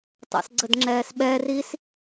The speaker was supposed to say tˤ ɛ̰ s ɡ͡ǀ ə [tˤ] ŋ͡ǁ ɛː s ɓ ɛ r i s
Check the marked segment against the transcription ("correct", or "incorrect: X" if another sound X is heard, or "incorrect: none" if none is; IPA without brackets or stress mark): incorrect: d